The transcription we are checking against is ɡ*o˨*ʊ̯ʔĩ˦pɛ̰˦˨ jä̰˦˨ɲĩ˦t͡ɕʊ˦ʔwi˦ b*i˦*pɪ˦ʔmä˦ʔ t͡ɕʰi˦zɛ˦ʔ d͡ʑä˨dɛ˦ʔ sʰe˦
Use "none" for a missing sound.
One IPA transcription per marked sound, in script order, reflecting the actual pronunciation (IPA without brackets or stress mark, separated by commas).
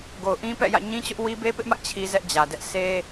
o˨, e˦